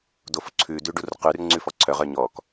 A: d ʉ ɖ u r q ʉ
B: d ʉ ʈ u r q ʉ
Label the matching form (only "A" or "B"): A